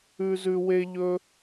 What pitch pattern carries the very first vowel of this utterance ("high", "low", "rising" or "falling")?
high